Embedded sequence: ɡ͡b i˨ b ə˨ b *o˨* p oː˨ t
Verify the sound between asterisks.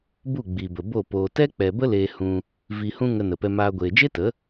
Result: incorrect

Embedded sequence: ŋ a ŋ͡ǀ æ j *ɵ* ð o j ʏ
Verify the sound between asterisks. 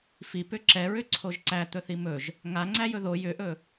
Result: correct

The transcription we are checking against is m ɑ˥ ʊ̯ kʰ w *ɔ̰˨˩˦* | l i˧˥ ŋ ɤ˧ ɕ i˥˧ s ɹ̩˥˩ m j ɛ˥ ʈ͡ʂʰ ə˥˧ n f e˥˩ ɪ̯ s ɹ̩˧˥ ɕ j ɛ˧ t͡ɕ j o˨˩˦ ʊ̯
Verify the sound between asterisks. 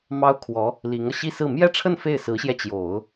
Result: incorrect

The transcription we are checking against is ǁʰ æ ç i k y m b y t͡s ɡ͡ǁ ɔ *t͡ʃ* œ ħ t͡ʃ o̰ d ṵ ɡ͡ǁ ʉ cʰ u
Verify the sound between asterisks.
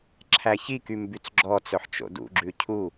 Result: incorrect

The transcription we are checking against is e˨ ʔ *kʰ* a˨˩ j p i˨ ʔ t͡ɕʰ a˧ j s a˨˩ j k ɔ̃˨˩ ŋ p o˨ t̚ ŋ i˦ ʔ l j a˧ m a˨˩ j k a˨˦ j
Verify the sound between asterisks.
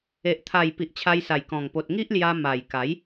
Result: incorrect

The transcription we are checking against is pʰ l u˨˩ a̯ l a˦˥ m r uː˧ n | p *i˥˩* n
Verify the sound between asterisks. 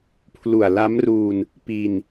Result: incorrect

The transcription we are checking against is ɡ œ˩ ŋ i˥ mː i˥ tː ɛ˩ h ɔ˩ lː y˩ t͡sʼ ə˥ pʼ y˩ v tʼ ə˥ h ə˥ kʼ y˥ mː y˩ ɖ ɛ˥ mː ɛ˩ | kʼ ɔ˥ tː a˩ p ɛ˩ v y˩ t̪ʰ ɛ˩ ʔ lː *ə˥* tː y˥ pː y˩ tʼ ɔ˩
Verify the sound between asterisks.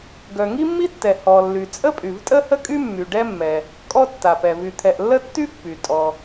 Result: correct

